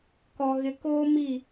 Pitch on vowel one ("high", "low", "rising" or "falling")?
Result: low